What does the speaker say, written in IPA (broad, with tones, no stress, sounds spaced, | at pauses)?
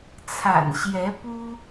t͡sʰ a̰˨˩ n ɕ j ɛ˨˦ p u˦